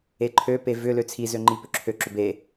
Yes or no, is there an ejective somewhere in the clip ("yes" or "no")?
no